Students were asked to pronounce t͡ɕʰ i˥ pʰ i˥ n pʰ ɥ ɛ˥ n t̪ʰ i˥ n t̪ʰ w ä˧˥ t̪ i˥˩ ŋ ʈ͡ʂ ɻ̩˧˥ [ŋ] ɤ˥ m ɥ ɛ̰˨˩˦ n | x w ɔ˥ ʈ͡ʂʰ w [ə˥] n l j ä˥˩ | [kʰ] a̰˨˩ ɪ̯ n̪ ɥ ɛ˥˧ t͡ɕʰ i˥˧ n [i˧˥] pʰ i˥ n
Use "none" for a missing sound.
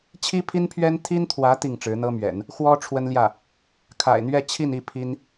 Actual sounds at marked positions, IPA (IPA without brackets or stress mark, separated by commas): n̪, ə˥, kʰ, i˥˩